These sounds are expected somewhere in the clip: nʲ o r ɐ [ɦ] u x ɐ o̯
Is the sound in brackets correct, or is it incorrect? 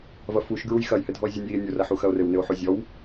incorrect: ħ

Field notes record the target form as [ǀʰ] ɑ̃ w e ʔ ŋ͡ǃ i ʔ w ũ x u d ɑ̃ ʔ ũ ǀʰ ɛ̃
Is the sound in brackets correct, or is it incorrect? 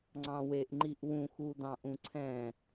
incorrect: ŋ͡ǀ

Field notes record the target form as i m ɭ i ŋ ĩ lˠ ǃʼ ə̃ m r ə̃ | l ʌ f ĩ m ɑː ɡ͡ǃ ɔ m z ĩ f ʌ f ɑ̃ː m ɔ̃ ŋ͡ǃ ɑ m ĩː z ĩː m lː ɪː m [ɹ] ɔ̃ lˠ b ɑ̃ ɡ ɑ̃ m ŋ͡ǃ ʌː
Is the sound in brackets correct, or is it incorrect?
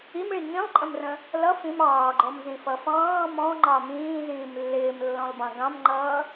incorrect: lː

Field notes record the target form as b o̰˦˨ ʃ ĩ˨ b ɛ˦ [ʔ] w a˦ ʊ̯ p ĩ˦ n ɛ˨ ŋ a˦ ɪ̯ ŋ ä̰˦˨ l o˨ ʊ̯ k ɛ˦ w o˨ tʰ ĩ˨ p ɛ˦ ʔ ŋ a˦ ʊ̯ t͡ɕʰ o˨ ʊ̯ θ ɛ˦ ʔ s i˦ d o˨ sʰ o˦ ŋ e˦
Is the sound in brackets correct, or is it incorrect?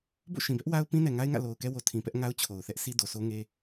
correct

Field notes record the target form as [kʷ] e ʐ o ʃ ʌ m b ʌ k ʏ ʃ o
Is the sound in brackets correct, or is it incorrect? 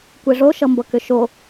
correct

